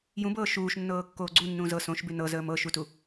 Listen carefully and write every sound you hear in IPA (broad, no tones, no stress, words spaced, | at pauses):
jũbɤː ʃuːʃnːɤːkːoː ɡ͡ǀunːũː zɤ sõʃbʉ nɤzəːm ɤʃutu